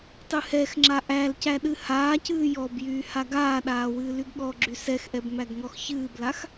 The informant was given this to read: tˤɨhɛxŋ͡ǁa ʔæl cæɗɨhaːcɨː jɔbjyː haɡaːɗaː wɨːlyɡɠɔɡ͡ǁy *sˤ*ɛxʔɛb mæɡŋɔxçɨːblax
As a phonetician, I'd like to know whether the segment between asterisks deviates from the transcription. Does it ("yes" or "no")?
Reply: yes